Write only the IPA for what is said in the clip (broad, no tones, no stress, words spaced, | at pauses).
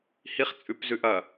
hiχ t͡sʼʉpzʉʔɐ